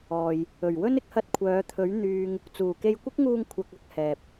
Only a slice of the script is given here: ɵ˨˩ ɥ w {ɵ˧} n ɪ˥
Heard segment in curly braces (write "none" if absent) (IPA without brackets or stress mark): ɵ˥